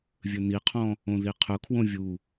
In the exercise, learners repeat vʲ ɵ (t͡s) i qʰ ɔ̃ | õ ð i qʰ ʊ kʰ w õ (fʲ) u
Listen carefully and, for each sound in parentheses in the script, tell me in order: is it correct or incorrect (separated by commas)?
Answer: incorrect, incorrect